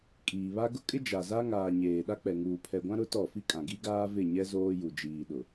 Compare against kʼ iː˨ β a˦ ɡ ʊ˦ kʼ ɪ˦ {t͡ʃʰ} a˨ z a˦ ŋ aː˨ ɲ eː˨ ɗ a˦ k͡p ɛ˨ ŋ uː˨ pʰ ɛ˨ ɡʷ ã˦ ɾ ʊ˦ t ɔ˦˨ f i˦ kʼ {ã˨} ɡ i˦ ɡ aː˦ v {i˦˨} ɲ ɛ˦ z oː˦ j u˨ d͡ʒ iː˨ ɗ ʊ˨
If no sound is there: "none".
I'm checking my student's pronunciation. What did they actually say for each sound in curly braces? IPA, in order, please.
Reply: d͡ʒ, ã˨, ɪ˦˨

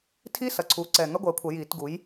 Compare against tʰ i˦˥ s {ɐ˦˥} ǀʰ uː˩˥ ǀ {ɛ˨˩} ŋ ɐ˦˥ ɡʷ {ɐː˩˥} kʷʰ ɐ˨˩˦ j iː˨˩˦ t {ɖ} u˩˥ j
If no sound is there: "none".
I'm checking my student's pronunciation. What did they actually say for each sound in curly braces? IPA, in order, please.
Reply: ɐ˨˩, ɛ˨˩, ɐː˩˥, ɡ

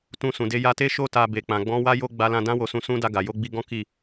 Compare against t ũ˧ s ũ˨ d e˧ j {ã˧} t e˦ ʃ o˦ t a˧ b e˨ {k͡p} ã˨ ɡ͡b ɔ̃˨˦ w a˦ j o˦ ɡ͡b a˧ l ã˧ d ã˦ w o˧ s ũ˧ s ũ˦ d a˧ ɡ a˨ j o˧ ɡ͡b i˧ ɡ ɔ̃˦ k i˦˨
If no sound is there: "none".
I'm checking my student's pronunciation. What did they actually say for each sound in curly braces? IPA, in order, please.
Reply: a˧, k͡p

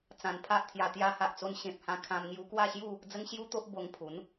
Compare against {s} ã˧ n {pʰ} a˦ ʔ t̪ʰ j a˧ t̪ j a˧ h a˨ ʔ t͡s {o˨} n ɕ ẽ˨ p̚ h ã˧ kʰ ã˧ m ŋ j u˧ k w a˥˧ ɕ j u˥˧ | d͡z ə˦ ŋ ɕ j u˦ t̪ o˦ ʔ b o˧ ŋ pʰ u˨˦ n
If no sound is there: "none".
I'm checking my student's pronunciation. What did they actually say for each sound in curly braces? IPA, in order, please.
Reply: t͡s, pʰ, o˧

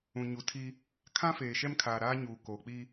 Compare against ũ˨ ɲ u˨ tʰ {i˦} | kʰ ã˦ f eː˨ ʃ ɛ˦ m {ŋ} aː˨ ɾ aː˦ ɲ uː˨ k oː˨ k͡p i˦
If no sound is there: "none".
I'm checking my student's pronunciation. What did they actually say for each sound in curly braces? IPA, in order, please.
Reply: i˦, kʰ

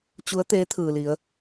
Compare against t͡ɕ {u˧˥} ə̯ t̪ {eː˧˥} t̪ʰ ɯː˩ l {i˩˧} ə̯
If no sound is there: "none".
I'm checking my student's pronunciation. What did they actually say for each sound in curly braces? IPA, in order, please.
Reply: u˧˥, eː˧˥, i˩˧

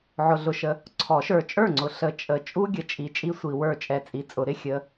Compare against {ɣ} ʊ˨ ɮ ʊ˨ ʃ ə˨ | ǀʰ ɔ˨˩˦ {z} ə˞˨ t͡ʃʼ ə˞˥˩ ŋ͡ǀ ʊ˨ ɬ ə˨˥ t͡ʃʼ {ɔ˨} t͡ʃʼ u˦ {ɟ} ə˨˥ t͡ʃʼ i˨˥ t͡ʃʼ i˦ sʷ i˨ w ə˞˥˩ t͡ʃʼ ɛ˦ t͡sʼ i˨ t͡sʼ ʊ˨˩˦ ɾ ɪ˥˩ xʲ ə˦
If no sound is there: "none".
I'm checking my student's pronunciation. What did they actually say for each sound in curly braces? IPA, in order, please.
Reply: ʕ, ʃ, ə˨, ɡʲ

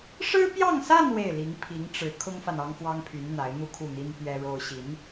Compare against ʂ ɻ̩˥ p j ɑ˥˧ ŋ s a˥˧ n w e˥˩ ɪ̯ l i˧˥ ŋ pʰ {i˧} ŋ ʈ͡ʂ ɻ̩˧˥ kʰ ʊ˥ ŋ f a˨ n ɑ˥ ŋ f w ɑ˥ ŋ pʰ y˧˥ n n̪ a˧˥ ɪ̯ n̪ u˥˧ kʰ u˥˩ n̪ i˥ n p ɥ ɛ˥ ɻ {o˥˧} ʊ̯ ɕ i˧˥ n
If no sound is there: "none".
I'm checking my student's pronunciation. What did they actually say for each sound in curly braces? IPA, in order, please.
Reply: i˧˥, o˥

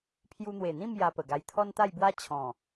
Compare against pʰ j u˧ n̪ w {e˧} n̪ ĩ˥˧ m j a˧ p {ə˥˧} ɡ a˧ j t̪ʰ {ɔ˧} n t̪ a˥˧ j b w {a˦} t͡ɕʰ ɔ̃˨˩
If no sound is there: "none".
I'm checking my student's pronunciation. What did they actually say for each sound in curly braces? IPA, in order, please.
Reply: e˨˩, ə˨˩, ɔ˦, a˦

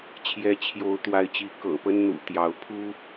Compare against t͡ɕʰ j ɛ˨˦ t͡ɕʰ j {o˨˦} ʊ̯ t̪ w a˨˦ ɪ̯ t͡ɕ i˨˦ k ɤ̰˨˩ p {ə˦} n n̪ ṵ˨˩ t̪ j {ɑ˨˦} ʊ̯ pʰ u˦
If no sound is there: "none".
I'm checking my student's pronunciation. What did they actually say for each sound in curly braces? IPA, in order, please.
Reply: o˨˦, ə˦, ɑ˨˦

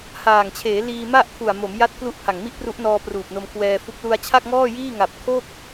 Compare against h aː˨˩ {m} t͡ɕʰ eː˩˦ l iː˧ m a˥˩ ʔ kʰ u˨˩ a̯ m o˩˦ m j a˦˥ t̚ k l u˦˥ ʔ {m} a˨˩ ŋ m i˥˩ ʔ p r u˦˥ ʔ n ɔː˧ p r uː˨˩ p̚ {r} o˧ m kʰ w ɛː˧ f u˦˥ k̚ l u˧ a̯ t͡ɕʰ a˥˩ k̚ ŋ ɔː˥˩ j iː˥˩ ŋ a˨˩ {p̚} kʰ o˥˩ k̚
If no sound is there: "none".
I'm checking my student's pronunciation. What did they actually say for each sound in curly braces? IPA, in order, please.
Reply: ŋ, pʰ, n, p̚

